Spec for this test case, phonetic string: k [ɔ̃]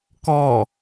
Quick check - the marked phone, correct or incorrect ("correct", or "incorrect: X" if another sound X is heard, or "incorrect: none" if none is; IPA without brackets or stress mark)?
incorrect: ɔ